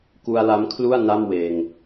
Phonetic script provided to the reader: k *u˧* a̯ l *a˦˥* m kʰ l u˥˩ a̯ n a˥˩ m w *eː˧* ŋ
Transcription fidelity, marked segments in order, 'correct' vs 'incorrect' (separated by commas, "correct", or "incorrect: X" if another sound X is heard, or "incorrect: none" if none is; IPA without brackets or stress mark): correct, correct, correct